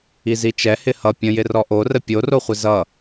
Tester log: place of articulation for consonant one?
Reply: alveolar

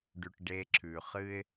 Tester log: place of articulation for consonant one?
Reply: retroflex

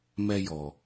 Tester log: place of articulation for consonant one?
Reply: labial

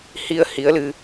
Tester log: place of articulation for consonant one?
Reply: glottal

